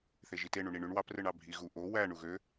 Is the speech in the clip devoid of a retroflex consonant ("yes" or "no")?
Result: no